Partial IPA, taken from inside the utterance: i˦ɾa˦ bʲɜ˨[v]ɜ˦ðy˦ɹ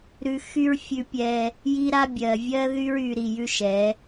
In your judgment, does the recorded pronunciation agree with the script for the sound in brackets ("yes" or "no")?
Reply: no